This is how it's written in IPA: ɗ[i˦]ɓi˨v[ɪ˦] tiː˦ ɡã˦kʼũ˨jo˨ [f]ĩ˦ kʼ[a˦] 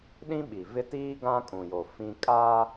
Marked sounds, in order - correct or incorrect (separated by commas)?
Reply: incorrect, correct, correct, correct